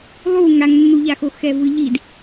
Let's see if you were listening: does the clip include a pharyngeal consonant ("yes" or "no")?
no